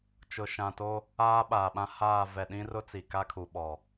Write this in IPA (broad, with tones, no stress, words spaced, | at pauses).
t͡ʃʊ˨ʃã˨to˦ | aː˦ɓaː˨ɓã˦ haː˦˨ vɛ˨ɗĩ˦rʊ˦ t͡si˨ka˦kʰu˨ɓɔ˨